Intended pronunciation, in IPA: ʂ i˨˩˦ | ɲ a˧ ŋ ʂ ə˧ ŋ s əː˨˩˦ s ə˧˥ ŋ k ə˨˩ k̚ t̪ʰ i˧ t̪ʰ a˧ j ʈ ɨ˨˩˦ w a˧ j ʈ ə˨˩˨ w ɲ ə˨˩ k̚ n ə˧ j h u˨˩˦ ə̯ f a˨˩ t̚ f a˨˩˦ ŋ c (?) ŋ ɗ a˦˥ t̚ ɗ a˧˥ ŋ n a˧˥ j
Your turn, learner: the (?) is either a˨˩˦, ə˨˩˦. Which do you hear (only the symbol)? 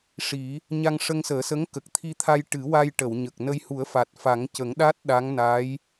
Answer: ə˨˩˦